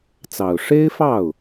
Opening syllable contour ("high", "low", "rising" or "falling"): low